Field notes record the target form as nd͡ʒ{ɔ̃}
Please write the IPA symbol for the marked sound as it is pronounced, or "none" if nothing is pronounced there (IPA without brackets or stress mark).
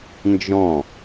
ɔ̃